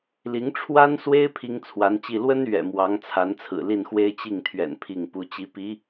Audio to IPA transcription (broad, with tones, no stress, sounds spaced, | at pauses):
l i˧˥ ŋ ʈ͡ʂʰ w a˥ n s w e˥ ɪ̯ pʰ i˥ ŋ t͡sʰ w a˧˥ n t͡ɕ i˥˩ l w ə˥ n ɥ ɛ̰˨˩ m w ɑ˧˥ ŋ t͡sʰ a˧˥ n t͡sʰ ɹ̩˨˩ l i˥˩ n x w e˥ ɪ̯ t͡ɕ i˥˩ ŋ t̪ʰ ɥ ɛ̰˨˩ n pʰ i˥˩ ŋ p u˧˥ t͡ɕ i˧˥ p i˧˥